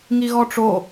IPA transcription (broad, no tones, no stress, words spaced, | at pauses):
ŋiɣɔʈ͡ʂo